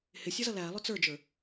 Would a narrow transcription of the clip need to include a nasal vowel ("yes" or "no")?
no